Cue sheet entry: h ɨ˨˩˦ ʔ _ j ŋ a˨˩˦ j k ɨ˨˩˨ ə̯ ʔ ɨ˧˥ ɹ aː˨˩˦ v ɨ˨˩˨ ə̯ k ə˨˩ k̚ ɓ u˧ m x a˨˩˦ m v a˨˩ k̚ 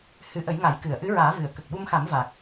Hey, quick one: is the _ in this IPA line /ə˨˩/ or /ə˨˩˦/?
ə˨˩˦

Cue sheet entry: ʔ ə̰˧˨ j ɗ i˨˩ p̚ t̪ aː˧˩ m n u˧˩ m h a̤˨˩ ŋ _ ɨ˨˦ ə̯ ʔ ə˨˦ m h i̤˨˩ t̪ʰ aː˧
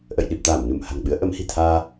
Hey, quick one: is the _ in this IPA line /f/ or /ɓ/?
ɓ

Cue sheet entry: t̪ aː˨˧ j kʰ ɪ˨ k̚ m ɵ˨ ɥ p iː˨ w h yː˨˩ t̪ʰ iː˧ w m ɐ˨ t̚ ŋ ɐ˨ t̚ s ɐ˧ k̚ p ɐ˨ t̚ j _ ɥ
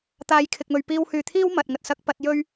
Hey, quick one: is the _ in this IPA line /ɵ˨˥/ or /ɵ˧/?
ɵ˧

